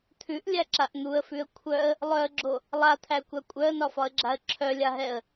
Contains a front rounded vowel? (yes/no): yes